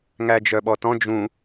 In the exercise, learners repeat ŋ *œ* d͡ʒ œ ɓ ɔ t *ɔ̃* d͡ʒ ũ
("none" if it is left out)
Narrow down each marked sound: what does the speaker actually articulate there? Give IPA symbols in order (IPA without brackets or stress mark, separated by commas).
æ, ɔ̃